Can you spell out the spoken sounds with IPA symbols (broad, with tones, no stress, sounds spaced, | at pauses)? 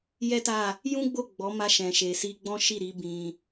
j ɛ˦ t a˦˨ | j ũ˦ ɡ͡b o˦˨ ɡ͡b ɔ˨˦ m a˧ ʃ ɛ̃˨ ʃ e˨ s i˧ ɡ͡b ɔ̃˦ ʃ i˦˨ ɾ i˨˦ b ĩ˧